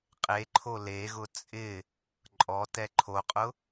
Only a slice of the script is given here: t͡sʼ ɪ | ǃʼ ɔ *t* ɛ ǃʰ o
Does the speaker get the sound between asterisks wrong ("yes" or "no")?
no